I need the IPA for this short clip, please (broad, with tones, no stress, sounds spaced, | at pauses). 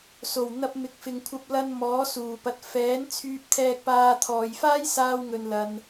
s o˨˩ w n̪ ɐ˧ p̚ m ɪ˨ k̚ f ɪ˨ ŋ kʷʰ ɐ˧ p̚ l ɐ˧ n m ɔː˨˥ s uː˨˩ p ɐ˨˥ t̚ f ɛː˨˥ n t͡sʰ yː˧ p̚ t̪ʰ ɛː˧ k̚ p aː˧ t̪ʰ ɔː˨ j f aː˥ j s aː˧ w ŋ ɵ˨ n l ɐ˨ n